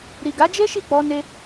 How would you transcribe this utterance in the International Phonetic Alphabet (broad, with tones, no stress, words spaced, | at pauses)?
ɾi˨ɡa˨˦d͡ʒe˦ ʃi˦˨k͡pɔ˧ ne˧